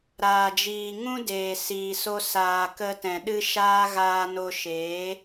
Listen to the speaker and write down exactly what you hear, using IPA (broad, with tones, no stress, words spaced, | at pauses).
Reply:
ɾaː˨d͡ʒiː˨ ŋũ˦deː˨ siː˨so˧saː˨ kə˧tɛ̃˨ ɗɨ˦ ʃaː˦ ɣaː˧no˧ ʃeː˨˦